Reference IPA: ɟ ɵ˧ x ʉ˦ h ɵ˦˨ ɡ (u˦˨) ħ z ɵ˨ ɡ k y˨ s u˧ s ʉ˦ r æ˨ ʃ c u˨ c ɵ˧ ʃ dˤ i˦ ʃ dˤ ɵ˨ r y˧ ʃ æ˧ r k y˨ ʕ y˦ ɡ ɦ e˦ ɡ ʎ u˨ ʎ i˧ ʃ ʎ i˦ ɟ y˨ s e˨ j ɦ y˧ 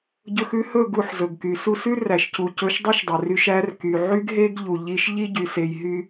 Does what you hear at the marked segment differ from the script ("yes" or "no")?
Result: no